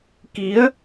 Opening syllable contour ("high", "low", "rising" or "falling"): rising